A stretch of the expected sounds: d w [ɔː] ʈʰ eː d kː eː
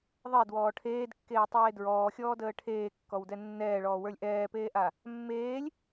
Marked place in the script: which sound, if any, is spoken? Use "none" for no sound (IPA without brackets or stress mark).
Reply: ɔː